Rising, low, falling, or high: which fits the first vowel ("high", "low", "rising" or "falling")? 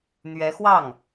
rising